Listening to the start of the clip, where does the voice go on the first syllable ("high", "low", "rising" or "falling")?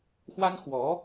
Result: high